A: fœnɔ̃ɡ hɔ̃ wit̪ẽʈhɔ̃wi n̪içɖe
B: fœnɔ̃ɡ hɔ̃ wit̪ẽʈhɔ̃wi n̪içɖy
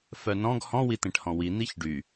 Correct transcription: B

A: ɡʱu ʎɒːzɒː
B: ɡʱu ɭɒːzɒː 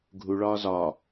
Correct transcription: B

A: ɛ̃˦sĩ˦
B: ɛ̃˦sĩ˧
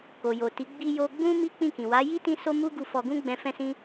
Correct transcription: A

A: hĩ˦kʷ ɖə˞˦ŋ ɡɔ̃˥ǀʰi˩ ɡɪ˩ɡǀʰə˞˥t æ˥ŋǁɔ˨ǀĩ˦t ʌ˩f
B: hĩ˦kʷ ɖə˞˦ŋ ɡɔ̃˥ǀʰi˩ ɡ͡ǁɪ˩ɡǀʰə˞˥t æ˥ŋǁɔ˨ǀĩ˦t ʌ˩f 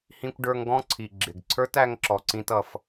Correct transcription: B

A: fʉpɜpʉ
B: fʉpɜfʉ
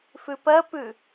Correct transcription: A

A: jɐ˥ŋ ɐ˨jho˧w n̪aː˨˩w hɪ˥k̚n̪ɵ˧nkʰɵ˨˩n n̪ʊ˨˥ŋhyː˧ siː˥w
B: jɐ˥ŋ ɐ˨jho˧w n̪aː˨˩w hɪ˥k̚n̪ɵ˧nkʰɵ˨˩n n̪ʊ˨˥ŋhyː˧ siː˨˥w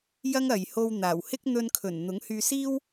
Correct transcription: A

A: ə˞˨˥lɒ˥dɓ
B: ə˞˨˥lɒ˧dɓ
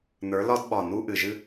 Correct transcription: A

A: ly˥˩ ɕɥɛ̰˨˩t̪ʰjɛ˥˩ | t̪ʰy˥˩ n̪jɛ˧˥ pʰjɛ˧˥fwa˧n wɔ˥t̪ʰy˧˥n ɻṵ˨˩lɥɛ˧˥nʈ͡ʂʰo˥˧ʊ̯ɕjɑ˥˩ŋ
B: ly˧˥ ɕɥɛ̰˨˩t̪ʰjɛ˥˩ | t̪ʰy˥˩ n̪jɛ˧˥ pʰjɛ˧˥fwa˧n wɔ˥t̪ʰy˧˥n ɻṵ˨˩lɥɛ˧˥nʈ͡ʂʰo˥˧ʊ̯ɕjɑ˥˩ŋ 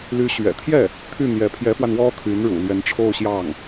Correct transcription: B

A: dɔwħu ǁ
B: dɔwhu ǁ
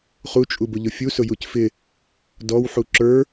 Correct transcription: A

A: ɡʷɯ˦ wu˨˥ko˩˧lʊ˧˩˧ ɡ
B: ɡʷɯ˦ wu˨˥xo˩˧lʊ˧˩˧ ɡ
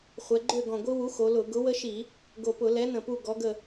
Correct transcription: B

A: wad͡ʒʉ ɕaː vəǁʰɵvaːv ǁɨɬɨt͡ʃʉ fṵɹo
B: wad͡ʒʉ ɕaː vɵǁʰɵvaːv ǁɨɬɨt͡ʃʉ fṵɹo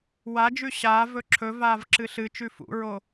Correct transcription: B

